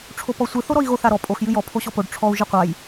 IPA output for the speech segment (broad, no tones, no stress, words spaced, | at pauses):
ʈ͡ʂʰopɔsʷɨ θoɾɔi̯ɣoθ aɾɔ pʼox jɨjɔ pʰoɕɔpoɖ ʈ͡ʂʰɔu̯ ʒɨqʷaj